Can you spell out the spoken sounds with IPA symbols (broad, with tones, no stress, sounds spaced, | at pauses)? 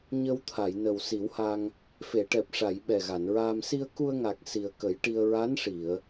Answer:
ɲ ə˧ w t̪ʰ a˨˩˨ j n ə˨˩ w s i˨˩˦ w h a˧ ŋ | f e˨˩˨ ʈ ɛ˨˩ p̚ ʂ a˨˩˨ j ɓ ɛ˨˩ ɣ a˨˩˨ n ɹ aː˧ m s i˧ ə̯ k u˧ ə̯ ŋ a˨˩ k̚ s i˨˩ ə̯ k ə˨˩˦ j ʈ i˧ ə̯ ɹ a˧˥ n ʂ i˨˩˨ ə̯